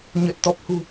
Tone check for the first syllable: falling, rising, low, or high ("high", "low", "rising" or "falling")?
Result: low